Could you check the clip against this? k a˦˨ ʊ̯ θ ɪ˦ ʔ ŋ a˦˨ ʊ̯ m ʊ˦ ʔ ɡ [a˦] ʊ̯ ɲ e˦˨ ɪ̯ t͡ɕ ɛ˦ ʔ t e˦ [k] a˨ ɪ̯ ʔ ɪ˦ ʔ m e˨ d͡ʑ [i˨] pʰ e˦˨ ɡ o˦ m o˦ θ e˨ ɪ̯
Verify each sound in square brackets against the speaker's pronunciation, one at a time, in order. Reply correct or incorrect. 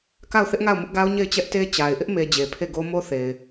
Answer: correct, incorrect, incorrect

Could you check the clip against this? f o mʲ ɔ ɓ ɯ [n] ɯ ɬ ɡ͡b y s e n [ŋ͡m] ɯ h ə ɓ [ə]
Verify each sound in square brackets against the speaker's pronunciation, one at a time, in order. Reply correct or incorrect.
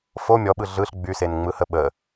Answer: incorrect, correct, correct

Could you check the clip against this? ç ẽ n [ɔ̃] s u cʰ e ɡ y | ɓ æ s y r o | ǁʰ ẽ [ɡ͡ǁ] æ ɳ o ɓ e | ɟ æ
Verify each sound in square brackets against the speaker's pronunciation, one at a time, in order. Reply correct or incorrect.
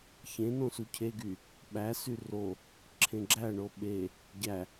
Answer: incorrect, correct

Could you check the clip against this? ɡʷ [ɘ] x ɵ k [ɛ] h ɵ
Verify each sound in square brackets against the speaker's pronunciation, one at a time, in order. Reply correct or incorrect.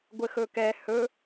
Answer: correct, correct

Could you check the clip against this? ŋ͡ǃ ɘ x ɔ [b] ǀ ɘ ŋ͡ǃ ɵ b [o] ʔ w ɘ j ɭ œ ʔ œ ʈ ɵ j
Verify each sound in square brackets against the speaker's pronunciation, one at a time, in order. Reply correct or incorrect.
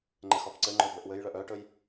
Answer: correct, incorrect

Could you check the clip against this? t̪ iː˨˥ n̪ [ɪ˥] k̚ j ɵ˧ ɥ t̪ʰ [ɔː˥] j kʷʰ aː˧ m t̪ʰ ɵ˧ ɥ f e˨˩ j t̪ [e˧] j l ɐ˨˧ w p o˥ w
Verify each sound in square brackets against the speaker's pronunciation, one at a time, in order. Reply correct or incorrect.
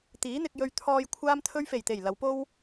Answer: incorrect, incorrect, incorrect

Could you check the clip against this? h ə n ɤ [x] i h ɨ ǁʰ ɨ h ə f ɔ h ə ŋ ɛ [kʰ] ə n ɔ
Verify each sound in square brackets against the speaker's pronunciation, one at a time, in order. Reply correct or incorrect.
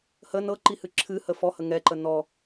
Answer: incorrect, incorrect

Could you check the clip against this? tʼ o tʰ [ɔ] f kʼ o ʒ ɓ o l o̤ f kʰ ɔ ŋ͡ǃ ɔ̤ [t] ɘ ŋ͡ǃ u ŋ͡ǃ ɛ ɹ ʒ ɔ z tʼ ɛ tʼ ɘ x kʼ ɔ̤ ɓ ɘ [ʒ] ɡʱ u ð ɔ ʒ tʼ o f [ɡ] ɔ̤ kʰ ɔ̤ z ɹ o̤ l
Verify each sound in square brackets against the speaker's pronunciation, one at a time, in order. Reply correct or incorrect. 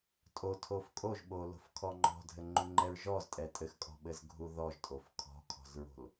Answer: incorrect, incorrect, incorrect, incorrect

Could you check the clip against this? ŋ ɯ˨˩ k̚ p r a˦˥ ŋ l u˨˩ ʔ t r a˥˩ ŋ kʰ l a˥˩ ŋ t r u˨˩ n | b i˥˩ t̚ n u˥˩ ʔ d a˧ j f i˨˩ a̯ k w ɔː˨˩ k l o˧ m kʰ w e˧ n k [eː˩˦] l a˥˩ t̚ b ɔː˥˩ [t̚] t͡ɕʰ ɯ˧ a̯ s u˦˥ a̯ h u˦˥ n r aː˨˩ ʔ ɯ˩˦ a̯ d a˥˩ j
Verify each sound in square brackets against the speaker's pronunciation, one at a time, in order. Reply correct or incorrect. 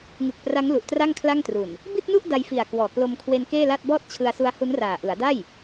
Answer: incorrect, correct

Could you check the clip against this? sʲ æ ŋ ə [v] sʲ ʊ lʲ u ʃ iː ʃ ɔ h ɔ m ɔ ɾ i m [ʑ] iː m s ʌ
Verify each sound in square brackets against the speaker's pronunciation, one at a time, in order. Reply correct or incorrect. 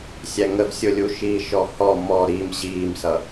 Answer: correct, correct

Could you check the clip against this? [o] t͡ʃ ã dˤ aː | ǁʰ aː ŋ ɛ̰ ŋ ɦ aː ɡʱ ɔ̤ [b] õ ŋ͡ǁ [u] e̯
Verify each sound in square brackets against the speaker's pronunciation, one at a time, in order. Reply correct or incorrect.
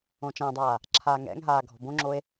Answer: incorrect, correct, incorrect

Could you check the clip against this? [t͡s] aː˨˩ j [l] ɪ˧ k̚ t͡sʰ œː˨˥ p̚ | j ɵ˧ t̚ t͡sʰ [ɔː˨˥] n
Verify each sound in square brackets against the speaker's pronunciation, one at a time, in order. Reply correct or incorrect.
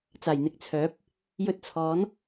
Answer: correct, incorrect, correct

